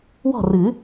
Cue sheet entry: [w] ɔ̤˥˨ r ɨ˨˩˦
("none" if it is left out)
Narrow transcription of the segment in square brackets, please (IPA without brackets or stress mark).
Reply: w